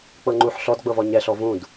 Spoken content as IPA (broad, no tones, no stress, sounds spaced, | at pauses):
k͡p ɤ ŋ͡ǃ u ħ ɬ ɔ d ɡ͡b ɤ v ɔ ɲ ɛ ɬ ɔ v ũ d